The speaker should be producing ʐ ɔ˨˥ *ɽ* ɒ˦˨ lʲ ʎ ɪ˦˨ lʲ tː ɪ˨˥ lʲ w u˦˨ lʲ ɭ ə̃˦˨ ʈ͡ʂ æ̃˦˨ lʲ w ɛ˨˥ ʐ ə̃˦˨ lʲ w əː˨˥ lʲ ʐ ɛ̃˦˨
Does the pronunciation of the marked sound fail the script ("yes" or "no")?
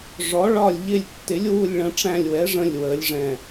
yes